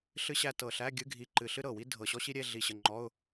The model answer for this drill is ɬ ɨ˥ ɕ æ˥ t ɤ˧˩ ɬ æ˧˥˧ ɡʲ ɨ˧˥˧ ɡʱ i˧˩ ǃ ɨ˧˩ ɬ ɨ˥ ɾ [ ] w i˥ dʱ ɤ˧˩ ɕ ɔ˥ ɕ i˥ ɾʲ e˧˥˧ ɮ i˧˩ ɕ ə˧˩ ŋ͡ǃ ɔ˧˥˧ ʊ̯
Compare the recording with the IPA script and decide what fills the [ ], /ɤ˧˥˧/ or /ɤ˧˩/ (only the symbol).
ɤ˧˩